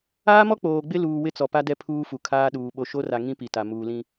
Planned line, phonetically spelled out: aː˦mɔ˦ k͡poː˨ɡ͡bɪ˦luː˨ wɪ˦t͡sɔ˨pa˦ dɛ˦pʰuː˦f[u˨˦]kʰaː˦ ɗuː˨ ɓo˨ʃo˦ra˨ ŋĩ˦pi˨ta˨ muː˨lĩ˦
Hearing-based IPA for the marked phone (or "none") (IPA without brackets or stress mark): u˨